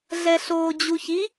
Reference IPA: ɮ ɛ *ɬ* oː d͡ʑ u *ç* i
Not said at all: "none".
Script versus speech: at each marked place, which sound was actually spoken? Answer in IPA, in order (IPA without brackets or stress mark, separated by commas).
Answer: ɬ, ç